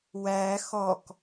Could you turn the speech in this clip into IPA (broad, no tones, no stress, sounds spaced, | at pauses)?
w æ x ɔ k